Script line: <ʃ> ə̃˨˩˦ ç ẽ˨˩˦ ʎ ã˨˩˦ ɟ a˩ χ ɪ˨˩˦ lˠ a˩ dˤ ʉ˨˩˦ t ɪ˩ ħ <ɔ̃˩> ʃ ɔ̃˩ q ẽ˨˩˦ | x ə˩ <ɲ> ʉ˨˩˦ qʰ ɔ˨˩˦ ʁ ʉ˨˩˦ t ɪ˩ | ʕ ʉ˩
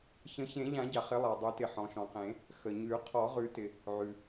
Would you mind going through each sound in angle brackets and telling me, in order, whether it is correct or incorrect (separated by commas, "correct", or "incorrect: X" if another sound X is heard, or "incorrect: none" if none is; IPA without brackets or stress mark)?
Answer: incorrect: ç, correct, correct